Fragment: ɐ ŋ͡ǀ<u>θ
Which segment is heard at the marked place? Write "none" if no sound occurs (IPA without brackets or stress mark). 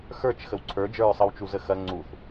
u